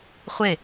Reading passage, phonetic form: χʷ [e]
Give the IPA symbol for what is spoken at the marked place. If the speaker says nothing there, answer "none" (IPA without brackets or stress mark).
e